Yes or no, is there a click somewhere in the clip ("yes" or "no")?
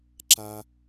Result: yes